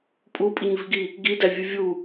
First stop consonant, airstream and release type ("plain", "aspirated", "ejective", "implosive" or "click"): ejective